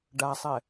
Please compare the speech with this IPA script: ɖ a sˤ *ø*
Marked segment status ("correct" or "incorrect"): incorrect